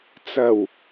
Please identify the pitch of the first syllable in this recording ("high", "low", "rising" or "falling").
low